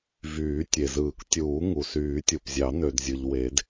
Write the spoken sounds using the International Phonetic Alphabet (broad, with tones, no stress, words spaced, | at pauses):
vyː˨˩˦tʲe˩zɯː˨˩˦ktʲuː˨˩˦ ŋu˩syː˨˩˦tʲu˩pzʲɑ˨˩˦ nø˩dzʲɯ˩ʎ we˨˩˦d